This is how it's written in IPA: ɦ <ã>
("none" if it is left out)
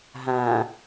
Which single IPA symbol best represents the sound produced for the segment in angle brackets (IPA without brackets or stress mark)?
ã